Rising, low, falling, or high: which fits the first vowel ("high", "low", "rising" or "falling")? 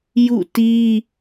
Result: falling